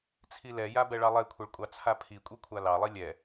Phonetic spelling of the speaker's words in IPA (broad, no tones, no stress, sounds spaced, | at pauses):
t͡sʰ i l ɛ j a b ɛ ɭ ɑ lˠ ɛ kʷʰ ɛ ɭ kʷʼ ɑ t͡sʰ a pʰ i kʷʼ i kʷʰ a l ɑ lˠ i lʲ ɛ